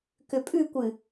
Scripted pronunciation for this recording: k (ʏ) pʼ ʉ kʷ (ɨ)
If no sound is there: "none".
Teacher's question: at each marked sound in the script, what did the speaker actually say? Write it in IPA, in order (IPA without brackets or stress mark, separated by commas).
ʏ, ɨ